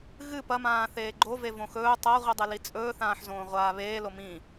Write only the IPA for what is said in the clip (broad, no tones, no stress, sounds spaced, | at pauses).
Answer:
ɣ ɨ p ɐ m ãː θ eː ɡ͡ǃ o v e v õ x ɵː tˤ a ʁʷ i dˤ e l i t͡sʼ ɵː θ ãː ħ z õː ʁʷ aː β eː l o m ĩ